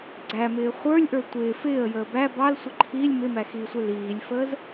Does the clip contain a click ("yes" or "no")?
yes